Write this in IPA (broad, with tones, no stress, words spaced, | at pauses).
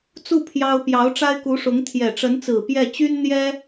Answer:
t͡su˥˩ pʰjɑ˥ʊ̯ pjɑ˧˥ʊ̯ʈ͡ʂa˥ɪ̯ku˧˥ʂʊ˧˥ŋ t̪ʰjɛ˨˩ʈ͡ʂə˧˥nt͡sɹ̩˨˩ pjɛ˥˩ t͡ɕy˥n n̪jɛ˥